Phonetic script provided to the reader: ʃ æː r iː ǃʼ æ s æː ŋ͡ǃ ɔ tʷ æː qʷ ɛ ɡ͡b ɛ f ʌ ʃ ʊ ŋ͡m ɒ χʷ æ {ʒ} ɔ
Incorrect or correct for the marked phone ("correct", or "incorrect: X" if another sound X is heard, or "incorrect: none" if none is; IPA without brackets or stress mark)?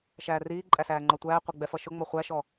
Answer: incorrect: ʃ